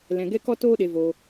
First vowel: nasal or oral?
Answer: nasal